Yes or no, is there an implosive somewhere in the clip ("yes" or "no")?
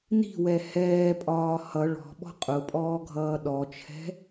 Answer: yes